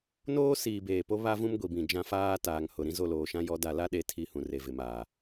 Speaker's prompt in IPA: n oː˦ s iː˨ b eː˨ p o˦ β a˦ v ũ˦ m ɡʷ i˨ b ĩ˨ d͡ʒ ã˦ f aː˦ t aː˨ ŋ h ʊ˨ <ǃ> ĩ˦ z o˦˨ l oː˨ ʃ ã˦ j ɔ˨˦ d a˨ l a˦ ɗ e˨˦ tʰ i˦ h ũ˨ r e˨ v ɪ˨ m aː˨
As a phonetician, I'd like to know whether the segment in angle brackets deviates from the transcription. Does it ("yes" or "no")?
yes